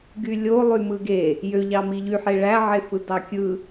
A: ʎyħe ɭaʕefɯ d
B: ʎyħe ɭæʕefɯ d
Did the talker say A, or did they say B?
B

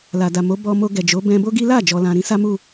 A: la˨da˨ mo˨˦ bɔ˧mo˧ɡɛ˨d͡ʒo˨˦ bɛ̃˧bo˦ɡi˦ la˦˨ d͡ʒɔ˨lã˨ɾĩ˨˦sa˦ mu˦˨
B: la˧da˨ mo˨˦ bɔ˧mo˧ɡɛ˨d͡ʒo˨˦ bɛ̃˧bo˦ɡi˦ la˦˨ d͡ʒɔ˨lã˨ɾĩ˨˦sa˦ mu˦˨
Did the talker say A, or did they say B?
A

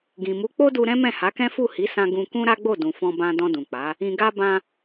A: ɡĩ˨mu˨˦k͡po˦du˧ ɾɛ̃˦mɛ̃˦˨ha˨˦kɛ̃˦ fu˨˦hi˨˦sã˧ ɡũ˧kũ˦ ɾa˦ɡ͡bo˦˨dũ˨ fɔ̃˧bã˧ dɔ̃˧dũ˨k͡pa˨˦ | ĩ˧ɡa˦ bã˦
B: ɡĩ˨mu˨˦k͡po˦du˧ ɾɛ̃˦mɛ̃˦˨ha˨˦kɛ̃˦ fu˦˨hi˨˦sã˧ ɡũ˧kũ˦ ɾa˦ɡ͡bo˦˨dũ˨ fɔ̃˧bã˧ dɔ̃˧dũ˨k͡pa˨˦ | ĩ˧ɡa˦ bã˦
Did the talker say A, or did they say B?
B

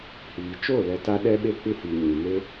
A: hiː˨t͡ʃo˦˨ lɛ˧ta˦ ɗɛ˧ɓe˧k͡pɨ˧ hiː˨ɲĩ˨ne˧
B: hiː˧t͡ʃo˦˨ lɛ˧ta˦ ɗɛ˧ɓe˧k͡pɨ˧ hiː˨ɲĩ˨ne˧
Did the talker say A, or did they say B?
A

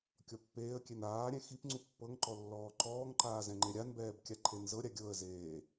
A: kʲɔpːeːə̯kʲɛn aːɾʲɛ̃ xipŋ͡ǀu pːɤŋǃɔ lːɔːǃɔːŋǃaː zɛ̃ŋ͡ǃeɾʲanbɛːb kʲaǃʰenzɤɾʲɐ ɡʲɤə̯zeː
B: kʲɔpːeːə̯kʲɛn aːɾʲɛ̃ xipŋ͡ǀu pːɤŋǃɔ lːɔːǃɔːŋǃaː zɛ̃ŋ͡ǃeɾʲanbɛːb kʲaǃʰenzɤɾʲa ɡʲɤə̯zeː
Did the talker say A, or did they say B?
B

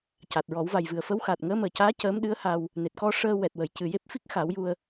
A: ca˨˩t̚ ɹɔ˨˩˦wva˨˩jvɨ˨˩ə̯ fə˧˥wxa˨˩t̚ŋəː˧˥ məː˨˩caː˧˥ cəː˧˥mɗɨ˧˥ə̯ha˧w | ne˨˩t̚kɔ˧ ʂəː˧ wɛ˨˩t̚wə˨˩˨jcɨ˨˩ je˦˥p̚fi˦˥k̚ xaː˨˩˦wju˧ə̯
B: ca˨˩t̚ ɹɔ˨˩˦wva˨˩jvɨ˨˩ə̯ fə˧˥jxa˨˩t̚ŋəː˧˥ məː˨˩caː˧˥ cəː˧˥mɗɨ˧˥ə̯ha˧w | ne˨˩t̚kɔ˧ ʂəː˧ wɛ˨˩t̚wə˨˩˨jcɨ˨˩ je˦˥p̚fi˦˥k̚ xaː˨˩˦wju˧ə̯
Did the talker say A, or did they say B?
A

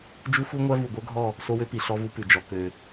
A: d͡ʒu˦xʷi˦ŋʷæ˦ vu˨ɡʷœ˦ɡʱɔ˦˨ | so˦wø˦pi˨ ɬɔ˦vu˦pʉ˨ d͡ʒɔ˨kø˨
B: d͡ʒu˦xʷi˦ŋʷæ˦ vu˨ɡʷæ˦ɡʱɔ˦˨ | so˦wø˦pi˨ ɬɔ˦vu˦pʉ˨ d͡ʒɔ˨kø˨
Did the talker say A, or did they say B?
A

